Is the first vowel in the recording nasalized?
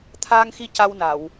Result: no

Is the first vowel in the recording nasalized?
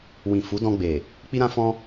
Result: yes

